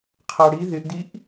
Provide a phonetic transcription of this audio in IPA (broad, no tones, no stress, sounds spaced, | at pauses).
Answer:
qʰ a ɽ i ð ɪ ʔ d i ʔ